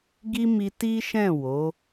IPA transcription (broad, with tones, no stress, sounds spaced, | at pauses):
ɡ i˦ m i˧ t i˦ ʃ ɛ̃˦˨ w o˨˦